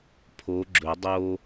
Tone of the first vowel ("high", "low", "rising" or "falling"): rising